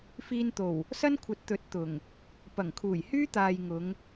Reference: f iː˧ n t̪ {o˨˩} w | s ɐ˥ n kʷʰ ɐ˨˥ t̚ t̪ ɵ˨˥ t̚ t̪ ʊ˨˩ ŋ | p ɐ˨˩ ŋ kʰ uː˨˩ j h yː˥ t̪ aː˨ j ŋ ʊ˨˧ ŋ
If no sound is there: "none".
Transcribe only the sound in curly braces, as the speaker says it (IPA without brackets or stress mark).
o˨˩